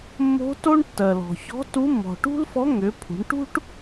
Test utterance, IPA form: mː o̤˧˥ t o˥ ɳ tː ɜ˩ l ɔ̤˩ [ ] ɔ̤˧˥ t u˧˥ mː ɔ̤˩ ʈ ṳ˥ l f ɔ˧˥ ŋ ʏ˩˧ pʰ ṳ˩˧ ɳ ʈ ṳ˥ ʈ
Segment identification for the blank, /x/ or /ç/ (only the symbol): ç